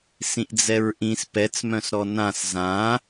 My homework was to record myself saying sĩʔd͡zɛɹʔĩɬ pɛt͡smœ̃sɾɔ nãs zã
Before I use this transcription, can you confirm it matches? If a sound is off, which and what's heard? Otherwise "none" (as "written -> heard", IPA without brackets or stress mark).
ɬ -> s